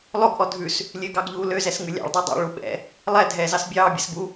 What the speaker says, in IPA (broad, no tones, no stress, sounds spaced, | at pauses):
lˠ o ɡ ʔ ɔ dʱ ʉ s | lʲ ø ɡ ɑ ɡ ʎ uː l ø z ɛ s ŋ ʉ lʲ ɑ̰ ɭ dˤ ɛ dˤ ɑ̰ ɭ u ɓ ɛ̰ | lˠ ɛ dʱ ɛː z ɑ s bʲ ɑː bʲ ɛ s b u